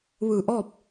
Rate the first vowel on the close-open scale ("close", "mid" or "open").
close